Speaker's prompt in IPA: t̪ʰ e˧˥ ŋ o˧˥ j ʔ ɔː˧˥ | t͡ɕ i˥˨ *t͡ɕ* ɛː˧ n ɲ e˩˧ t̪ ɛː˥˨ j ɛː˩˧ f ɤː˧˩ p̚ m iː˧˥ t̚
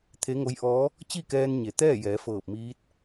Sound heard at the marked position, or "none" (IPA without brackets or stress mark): k